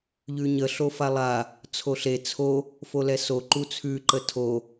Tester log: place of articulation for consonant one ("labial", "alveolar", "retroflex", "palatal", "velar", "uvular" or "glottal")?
palatal